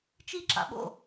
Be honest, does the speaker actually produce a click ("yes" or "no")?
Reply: yes